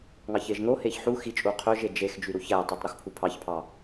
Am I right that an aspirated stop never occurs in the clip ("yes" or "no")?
no